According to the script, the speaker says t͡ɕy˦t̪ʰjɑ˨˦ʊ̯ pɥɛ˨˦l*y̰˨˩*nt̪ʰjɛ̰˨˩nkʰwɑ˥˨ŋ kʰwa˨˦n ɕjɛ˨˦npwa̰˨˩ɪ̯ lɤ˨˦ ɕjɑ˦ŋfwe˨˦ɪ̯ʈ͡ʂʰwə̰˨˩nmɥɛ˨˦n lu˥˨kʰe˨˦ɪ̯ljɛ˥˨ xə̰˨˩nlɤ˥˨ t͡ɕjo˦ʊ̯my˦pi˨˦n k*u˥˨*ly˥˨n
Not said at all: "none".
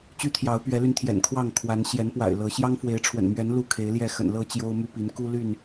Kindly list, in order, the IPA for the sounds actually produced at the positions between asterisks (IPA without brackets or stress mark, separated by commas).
y˧, u˦